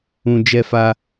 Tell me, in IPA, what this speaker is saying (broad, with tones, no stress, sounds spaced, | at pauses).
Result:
ũ˧ d͡ʒ ɛ˦ f a˦